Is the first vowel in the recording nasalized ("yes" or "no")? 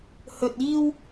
no